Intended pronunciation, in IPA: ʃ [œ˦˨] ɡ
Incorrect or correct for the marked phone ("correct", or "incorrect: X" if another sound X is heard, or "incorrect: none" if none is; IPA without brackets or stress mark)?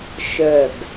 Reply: correct